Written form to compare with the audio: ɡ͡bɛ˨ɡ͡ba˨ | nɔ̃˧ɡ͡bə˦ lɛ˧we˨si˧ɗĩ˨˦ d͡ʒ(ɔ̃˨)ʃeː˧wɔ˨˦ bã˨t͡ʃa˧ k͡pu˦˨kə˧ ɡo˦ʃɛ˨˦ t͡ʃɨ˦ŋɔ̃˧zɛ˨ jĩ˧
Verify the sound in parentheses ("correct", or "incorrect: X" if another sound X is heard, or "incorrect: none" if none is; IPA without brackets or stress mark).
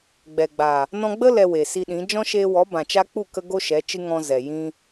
incorrect: ɔ̃˦